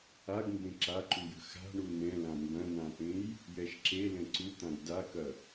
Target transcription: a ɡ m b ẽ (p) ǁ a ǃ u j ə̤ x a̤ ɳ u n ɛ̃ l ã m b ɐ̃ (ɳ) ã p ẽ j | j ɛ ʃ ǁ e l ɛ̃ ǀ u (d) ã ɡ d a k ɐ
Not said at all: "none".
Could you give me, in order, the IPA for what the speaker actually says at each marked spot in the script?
none, n, t̪

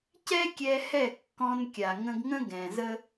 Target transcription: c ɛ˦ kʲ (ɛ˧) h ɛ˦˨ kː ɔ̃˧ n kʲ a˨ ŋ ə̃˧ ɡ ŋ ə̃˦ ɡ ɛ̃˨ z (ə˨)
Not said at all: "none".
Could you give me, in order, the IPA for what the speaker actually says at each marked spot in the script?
ɛ˧, ə˦

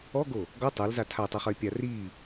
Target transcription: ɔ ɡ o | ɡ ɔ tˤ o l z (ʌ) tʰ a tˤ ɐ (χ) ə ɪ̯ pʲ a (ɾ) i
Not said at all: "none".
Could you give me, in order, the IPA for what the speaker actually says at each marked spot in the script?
a, χ, r

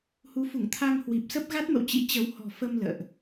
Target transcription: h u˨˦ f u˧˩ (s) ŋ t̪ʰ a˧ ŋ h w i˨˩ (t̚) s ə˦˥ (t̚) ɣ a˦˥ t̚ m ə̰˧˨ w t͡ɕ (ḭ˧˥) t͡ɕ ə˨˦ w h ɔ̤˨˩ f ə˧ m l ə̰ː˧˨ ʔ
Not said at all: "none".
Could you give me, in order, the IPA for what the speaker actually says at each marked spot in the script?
none, p̚, p̚, ḭ˧˥

